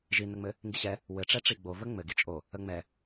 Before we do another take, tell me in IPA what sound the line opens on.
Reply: ʒ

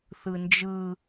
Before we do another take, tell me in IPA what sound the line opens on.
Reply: θ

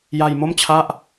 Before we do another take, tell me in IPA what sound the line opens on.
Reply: j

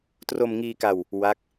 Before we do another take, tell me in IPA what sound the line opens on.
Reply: t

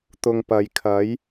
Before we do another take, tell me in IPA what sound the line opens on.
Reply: t̪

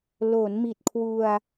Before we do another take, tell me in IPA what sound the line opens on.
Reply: l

